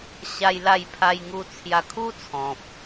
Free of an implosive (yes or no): yes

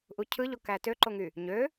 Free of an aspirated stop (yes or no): no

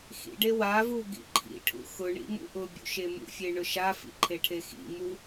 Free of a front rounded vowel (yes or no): yes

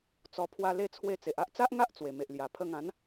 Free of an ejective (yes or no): yes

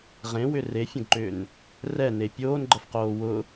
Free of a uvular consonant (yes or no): no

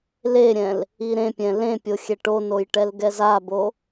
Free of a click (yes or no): yes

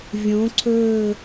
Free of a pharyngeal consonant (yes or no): yes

